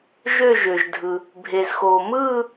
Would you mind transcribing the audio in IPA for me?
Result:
ʒ ø˥˧ ʒ ø˩ ʒ dʱ ɯ˩ | bʱ e˩ z x oː˩ m ɯː˥˧

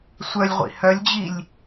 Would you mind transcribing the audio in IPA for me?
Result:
sʷ œ lʲ ʁʷ ḭ h œ lʲ d͡ʑ i lʲ

